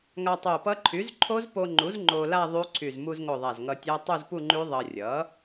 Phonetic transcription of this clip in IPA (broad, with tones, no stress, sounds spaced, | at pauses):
ŋ a˧ tˤ o˧˩ p ʌ˦˥ ǃʰ y˩˥ z ǃʰ o˦˥ z p o˧ ŋ͡ǃ u˩˥ z ŋ͡ǃ o˧ l a˥˧ ðˤ y˦˥ ǀʰ y˧˩ z m u˧ z ŋ o˧˩ ðˤ a˧˩ z ŋ ʌ˧ tʲ a˦˥ tˤ u˥˧ z p u˥˧ ŋ͡ǃ y˦˥ ðˤ ʌ˧ rʲ ʌ˩˥